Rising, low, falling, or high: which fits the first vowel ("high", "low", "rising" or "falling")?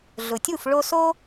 low